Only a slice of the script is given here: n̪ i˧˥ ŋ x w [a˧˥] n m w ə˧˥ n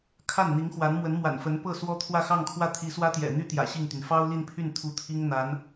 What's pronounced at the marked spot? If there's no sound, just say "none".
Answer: a˧˥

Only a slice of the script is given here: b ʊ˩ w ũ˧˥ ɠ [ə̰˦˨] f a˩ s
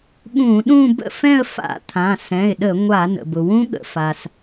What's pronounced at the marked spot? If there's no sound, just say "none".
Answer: ə̰˩˧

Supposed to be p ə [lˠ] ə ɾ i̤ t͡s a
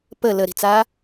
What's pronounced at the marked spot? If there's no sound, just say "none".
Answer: l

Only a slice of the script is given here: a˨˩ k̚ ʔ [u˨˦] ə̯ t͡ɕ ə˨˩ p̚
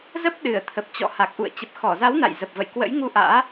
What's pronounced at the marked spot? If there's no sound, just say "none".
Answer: ṵ˧˨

